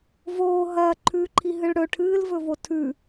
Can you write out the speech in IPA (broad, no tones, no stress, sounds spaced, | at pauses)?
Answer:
v oː ɦ ɐː ǃʰ ʉː ǃʰ i ɦ ɨ ɭ ɽ ɵ ʈʰ ɨː l v ɵ v o tʰ ʉ